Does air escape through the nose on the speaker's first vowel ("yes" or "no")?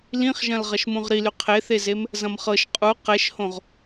yes